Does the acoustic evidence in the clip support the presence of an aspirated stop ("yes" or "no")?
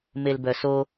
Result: no